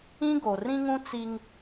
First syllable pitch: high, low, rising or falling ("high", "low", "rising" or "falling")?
high